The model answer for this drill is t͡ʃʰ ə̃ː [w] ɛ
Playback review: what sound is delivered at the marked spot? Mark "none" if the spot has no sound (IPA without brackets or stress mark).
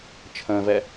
v